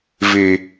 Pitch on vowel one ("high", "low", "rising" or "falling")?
low